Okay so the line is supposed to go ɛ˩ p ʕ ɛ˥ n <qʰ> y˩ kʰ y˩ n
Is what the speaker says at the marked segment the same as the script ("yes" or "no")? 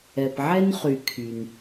no